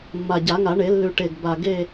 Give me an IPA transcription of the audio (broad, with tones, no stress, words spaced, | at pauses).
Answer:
mːa˨˩ɟa˨˩˦ŋa˨˩˦ɳe˨˩˦ lːʉ˨˩ʈe˨˩ɡ ba˨˩ ɡe˥˧